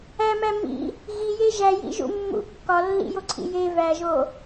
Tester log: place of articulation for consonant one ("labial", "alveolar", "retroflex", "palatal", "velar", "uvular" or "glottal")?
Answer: labial